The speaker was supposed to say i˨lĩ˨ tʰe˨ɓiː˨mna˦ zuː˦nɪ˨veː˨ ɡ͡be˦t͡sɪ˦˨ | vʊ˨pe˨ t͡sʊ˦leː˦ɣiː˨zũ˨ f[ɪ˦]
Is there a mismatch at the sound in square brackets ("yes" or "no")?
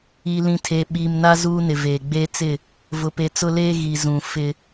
no